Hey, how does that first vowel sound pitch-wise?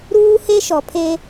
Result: high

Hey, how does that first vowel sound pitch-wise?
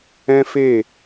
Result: high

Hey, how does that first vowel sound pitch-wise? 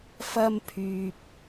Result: high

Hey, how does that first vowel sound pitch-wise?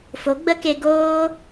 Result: rising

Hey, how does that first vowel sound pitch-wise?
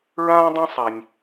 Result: high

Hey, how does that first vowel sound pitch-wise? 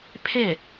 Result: falling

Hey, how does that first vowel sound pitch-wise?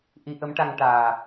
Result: rising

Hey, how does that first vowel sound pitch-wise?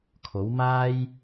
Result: rising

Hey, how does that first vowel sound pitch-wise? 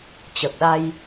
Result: low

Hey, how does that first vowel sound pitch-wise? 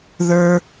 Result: high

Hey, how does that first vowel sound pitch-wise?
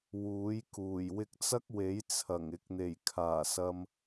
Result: rising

